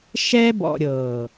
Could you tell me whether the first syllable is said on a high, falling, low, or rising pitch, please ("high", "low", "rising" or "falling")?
high